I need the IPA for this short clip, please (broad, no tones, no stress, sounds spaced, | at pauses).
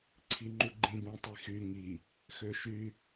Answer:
ǀʰ i ŋ͡ǃ u ɡ͡ǃ ĩ b ũ tˤ i x y ŋ i | x ø ʃ y